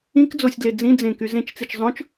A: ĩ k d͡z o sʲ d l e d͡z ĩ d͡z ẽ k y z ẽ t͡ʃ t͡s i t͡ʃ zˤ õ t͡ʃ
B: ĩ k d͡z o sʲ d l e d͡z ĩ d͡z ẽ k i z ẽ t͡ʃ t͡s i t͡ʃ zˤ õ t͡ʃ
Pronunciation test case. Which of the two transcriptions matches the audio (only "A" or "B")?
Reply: A